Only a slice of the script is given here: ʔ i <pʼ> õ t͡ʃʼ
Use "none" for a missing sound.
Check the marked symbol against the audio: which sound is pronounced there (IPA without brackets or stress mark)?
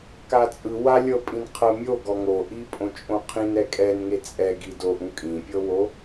pʼ